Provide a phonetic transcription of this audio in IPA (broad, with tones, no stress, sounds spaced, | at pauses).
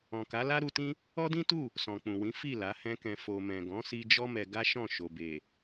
ɔ̃˨ k a˨˦ l a˦ ɾ u˧ t ĩ˦ | ɔ˦ d ĩ˦ t u˦˨ | s ɔ̃˨ k͡p ũ˨ w ĩ˨˦ f i˦˨ l a˨˦ h ɛ̃˦ k ɛ̃˧ f o˧ m ɛ̃˨ ɡ ɔ̃˨˦ s i˧ d͡ʒ ɔ˦ m ɛ˧ ɡ a˦ ʃ ɔ̃˦˨ ʃ o˨ b e˨